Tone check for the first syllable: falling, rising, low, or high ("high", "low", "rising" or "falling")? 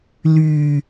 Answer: low